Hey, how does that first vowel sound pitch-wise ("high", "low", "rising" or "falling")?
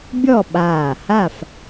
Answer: falling